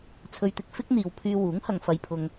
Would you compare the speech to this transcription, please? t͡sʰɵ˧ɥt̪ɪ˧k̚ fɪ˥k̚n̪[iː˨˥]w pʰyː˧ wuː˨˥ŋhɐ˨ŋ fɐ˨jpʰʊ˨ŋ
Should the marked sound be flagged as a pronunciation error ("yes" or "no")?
yes